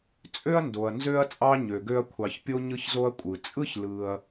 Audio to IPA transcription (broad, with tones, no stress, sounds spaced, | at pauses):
t͡sʼ ø˥ ɐ̯ n d o˩ ɐ̯ n z ø˦ ɐ̯ t͡sʼ ɑ˦ ɲ ø˩ ɡ ø˦ ɐ̯ kʷʰ ɑ˩ ç pʲ o˦ ɲ ɯ˦ ç z o˦ ɐ̯ kʷʼ ɯ˩ t͡sʼ ɯ˥ ç l ɯ˨ ɐ̯